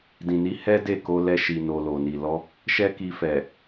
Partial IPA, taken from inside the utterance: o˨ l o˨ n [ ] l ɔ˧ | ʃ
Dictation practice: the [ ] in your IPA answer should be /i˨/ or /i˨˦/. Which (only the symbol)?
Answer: i˨